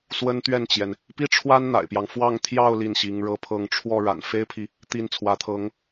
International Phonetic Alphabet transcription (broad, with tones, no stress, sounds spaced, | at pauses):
s w ə˥ n t̪ ɥ ɛ˥˩ n t͡ɕ j ɛ˩ n | p i˥ ʈ͡ʂʰ w a˥ n n̪ a̰˨˩ ɪ̯ p j ɑ˦ ŋ f w ɑ˥˧ ŋ t̪ʰ j ɑ˥˧ ʊ̯ l i˥˩ n ɕ i˧˥ ŋ ɻ ɤ˥˧ pʰ ɤ˥˧ ŋ ʈ͡ʂʰ w ɔ˥˩ ɻ a̰˨˩ n f e˥ ɪ̯ pʰ i˨ | t̪ i˥˩ n t͡sʰ w ä˧˥ t̪ʰ ɤ˧˥ ŋ